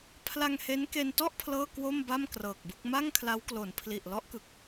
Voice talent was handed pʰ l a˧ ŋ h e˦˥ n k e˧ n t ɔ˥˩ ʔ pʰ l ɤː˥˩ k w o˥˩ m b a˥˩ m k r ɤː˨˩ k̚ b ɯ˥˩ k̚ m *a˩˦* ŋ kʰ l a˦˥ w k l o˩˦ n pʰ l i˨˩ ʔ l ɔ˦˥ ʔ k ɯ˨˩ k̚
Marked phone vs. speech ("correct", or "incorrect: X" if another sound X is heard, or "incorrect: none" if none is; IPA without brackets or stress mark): incorrect: a˥˩